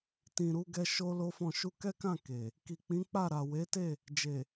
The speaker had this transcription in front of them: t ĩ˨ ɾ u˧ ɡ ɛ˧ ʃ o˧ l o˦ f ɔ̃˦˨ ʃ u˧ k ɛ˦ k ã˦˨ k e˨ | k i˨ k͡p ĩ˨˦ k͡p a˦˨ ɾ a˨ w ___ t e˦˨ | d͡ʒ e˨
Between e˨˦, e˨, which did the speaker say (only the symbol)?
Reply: e˨˦